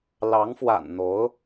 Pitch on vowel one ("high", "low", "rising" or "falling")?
rising